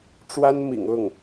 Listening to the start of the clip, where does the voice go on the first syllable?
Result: high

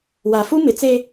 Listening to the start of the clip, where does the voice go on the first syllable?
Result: low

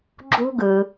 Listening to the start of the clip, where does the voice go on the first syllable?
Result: high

